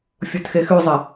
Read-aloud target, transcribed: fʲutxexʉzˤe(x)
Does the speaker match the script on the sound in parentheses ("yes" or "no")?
no